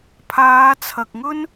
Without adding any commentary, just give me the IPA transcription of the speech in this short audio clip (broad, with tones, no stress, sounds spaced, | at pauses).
pʰ aː˨˧ t͡sʰ ɐ˨ k̚ ŋ ɵ˥ n